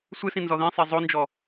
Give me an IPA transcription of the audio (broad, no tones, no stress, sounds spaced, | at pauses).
sʷ ɨ s ĩ n z ɔ ð ĩ sˤ e zˤ o n d͡ʒ ɔ